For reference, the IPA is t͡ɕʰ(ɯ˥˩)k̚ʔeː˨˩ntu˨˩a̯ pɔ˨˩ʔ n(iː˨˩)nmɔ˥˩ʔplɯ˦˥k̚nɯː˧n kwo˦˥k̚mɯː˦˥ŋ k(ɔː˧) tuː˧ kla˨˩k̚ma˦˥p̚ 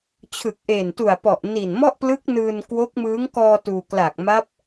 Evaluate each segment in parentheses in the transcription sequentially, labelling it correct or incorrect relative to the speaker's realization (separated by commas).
incorrect, correct, correct